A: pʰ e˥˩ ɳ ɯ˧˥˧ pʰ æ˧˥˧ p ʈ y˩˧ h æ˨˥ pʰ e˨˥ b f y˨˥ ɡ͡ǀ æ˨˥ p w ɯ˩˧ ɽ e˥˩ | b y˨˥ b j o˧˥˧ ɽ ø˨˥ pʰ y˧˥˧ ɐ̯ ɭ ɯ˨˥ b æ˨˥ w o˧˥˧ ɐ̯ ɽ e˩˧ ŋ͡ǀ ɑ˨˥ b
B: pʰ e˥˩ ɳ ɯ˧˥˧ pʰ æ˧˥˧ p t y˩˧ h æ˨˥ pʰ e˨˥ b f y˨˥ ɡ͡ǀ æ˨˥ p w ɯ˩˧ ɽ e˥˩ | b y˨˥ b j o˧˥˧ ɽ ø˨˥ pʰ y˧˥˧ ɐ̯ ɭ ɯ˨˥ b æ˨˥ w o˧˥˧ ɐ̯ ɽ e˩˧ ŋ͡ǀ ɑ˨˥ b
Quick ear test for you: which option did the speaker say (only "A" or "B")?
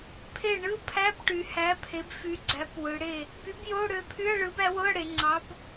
A